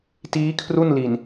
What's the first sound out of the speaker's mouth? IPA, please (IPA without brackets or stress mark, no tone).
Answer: t